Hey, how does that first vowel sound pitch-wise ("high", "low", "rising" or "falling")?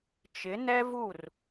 rising